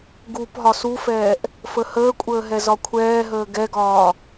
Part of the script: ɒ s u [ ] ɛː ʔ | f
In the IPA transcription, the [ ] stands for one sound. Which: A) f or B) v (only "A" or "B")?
A